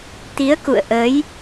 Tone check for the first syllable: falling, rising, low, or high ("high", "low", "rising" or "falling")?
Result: rising